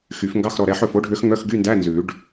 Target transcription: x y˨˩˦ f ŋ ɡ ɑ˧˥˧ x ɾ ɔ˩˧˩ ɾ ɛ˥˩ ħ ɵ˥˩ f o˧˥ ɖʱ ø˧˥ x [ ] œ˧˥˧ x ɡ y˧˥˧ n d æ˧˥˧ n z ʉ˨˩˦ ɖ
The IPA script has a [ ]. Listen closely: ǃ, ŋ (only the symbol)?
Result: ŋ